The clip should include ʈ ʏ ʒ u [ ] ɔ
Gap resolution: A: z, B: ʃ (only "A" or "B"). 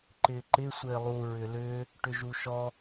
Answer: B